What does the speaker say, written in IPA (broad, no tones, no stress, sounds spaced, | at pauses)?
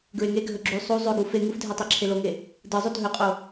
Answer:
ɡ ɹ e ŋ e ɡʱ ɵ ɡ͡ǁ ʉ sˤ u zˤ ʉ ɡ u f e ŋ u f dʱ e tˤ æ ǁʰ e l o ŋ e | d ɯ zˤ ʉ dʱ ɵ qʼ o